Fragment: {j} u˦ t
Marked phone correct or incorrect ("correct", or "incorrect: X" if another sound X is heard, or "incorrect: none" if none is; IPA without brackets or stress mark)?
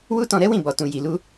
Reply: incorrect: w